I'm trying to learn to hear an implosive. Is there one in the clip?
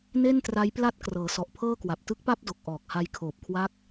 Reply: no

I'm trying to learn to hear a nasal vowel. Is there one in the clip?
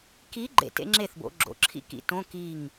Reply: yes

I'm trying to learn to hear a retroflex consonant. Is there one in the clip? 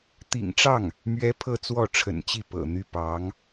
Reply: yes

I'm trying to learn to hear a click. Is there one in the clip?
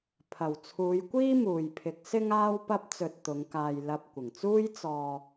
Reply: no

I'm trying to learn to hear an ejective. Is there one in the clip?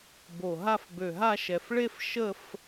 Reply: no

